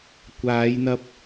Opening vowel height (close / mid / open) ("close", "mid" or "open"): open